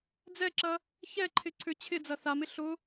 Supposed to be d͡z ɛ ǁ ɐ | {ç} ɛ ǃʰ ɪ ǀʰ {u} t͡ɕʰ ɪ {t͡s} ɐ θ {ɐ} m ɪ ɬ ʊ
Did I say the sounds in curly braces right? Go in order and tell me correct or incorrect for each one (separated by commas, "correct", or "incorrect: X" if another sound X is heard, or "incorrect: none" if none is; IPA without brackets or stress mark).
correct, incorrect: ʏ, incorrect: d͡z, incorrect: a